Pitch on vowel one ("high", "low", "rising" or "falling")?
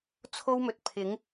high